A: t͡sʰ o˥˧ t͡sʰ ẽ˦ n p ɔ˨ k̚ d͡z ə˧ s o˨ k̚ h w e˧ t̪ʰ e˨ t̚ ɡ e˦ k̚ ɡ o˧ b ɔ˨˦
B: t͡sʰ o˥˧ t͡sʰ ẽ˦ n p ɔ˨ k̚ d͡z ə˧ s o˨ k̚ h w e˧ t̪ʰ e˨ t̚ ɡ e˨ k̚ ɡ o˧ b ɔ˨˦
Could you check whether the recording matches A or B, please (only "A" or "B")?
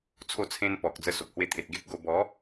A